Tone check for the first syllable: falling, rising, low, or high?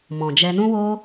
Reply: low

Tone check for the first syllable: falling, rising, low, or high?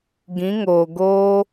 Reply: rising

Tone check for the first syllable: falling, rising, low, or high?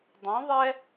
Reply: rising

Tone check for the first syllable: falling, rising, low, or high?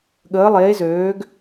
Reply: rising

